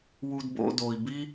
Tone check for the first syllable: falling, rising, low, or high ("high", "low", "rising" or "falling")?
high